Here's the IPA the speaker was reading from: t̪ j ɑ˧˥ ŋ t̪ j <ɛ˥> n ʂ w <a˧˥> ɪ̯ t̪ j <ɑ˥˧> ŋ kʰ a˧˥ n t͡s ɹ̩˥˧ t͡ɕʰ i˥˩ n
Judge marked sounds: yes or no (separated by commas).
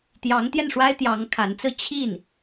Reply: no, no, no